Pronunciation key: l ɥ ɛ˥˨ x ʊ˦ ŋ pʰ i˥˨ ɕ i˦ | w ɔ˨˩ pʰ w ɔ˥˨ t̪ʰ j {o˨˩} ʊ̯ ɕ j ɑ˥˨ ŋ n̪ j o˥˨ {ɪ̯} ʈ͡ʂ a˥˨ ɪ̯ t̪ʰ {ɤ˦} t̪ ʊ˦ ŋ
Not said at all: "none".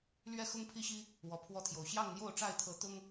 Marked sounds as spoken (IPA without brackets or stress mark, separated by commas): o˨˩, ʊ̯, ɤ˨˦